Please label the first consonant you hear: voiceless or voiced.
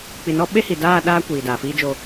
voiceless